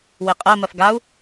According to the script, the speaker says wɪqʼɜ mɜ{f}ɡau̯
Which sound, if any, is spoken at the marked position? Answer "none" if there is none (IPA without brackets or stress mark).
f